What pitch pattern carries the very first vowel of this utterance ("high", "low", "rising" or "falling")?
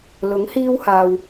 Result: rising